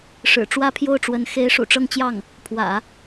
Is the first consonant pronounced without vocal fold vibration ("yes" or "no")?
yes